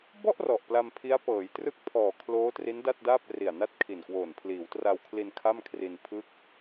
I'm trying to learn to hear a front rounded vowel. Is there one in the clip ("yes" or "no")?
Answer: no